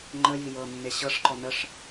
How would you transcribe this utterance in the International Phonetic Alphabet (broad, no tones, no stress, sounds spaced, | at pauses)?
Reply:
ŋ͡ǃ ə j i j ɤ nː e ɕ ɤ ʂ ǃ ɔ n ə ʂ